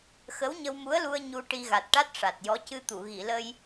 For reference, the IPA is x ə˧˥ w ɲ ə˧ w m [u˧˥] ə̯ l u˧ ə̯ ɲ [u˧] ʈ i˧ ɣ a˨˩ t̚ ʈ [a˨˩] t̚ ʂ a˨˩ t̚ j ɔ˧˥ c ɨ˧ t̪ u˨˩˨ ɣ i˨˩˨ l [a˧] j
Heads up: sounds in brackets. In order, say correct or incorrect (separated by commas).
correct, correct, incorrect, incorrect